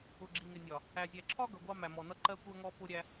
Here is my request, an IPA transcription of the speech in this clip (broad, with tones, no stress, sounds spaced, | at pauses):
ʊ˨ ɡ͡ǁ i˨ ŋ ɪ˨ nʲ ɒ˨ | æ˨ zʲ æ˨ ǁʰ ɒ˦ ɡ ʌ˨ ɡʷ ɑ˦ m æ˨ m ɔ˨ n ʌ˦ ǃ ɜ˦ kʷ ɜ˦ ŋ ɔ˦ p ʊ˦ ɾʲ æ˦